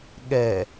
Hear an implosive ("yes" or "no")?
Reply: yes